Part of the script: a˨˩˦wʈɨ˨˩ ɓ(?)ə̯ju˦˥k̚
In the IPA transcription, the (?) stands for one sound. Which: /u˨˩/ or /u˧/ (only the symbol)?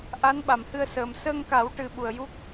u˨˩